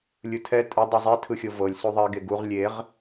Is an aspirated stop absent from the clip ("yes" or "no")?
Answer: no